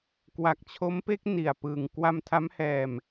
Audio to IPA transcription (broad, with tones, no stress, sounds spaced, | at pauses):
k w a˨˩ k̚ t͡ɕʰ o˦˥ m p e˦˥ k̚ n i˧ a̯ p ɯː˧ ŋ k w a˧ m tʰ a˦˥ m h ɛː˧ m